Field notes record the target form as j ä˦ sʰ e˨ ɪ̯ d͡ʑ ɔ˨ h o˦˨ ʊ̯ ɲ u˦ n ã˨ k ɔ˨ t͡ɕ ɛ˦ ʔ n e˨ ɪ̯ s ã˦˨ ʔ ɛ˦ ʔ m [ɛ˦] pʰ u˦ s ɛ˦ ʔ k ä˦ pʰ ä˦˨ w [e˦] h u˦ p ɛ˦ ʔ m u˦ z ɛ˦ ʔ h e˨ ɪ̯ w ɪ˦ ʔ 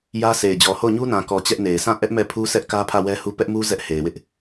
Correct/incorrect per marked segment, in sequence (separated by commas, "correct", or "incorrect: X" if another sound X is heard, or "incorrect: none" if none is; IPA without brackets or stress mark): incorrect: ɛ˦˨, incorrect: ɛ˦